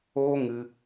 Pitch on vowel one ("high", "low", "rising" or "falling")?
high